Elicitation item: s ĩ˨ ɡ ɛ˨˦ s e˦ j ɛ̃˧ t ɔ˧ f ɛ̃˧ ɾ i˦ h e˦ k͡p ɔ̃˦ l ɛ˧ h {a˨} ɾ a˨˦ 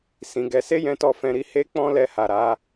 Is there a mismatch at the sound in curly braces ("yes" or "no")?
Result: no